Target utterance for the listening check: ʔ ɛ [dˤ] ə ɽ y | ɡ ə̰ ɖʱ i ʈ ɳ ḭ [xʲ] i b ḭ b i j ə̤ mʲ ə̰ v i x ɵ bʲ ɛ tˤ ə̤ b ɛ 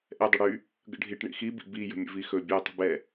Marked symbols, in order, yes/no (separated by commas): yes, no